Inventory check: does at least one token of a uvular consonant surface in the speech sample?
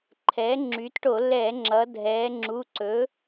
no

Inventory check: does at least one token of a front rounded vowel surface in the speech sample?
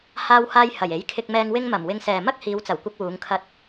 no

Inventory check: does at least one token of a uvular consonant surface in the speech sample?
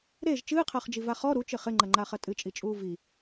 yes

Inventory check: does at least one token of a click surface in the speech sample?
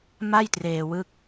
no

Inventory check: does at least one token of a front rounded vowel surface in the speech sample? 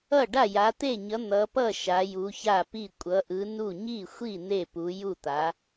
no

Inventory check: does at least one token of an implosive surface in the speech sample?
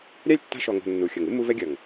no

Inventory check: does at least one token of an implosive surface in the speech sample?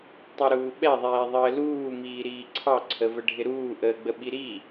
yes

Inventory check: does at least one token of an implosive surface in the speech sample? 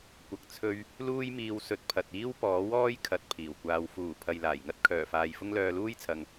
no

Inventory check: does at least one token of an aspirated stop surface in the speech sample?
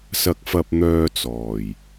no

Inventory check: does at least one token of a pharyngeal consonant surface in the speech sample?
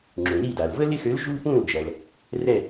no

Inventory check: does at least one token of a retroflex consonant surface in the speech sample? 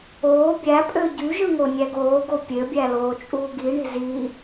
yes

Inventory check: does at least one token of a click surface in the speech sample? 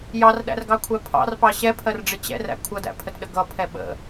no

